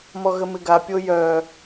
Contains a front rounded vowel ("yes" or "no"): yes